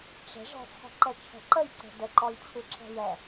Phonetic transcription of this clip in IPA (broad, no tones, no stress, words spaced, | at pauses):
ʈ͡ʂə̤ ʐɔ̤t͡sʰɔ̤ǃɛt͡ʃʰɛ̤ ǃəjǀɛ̤ dəǃɔjt͡ɕʰɨǁɛ̤ jɛ